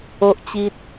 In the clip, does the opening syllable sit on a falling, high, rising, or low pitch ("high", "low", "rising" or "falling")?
high